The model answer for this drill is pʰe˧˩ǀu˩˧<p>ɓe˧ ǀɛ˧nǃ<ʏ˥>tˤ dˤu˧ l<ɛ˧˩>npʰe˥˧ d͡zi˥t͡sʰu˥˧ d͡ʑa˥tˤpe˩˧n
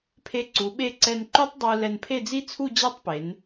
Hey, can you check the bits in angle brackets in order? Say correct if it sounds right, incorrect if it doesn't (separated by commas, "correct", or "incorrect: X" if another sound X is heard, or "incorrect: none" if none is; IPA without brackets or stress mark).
incorrect: none, incorrect: u˥, incorrect: ɛ˧